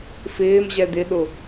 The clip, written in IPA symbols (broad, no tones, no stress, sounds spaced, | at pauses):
f ɪː m ʑ ɛ d̪ ɪ ɗ ʊ